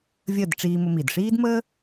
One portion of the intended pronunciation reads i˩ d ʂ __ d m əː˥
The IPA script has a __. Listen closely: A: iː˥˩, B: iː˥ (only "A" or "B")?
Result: B